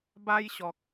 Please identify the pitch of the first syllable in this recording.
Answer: high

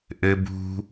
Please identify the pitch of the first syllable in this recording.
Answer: high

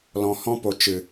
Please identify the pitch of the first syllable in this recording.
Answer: low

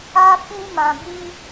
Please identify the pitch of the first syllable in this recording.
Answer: high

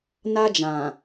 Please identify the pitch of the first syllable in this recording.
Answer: high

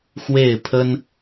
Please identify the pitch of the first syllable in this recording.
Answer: falling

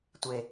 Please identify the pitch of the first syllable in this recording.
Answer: low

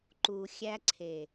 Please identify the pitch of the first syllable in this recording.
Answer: low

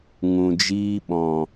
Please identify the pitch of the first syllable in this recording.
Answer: low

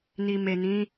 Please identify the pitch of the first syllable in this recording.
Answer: low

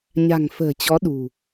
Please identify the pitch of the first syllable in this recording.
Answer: low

